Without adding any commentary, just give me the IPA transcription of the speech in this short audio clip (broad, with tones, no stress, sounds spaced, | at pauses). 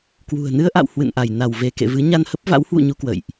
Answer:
k w ṳ˨˩ ə̯ n ɨ˧ ə̯ ʔ a̰˧˨ w h w ɨ̰˧˨ n ʔ a˧˩ j n a˧˩ w v e˧˩ k ḛ˧˨ v ɨ˨˦ ɲ a˧ n h ə˦˥ p̚ v a̰˧˥ w h w ṵ˧˨ ɲ u˧ k w ə̰˧˨ j ʔ